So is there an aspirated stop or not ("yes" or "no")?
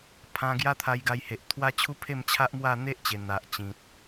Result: yes